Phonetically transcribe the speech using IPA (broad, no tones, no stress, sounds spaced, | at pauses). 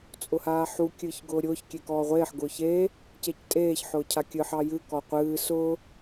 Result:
t͡sʼ ʊ h aː ħ u kʲ ɨː ç ɡ ʊː ɾʲ ʊː ç kʲ e k ɔː ʁʷ eː ħ ɡ ʊː ç e | c e c tʼ eː ç ħ ʊː cʰ a kʲ ɨ ħ ɑ j ɨ k ɔ qʷ ɨː s ʊ